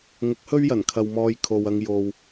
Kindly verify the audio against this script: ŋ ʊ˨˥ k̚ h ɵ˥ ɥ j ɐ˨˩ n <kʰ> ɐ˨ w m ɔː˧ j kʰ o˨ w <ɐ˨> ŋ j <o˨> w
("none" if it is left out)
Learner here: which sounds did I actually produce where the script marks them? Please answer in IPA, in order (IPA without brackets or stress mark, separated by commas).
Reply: kʰ, ɐ˧, o˨